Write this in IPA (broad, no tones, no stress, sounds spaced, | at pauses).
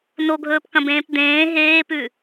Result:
n o ɡʱ ɵː p k ɐ̃ b ẽː p d̪ ẽː ɦ eː p ʉ